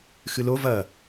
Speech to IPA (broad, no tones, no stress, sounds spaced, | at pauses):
x ɨ l o v ɐ